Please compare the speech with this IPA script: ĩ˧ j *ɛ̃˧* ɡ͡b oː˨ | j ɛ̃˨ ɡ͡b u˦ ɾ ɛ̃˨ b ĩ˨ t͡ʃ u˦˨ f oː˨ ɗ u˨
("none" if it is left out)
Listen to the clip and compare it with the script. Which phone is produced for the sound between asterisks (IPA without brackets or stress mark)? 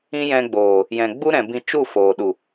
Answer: ɛ̃˧